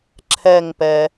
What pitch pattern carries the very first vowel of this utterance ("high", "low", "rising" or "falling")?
falling